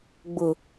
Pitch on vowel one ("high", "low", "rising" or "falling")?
low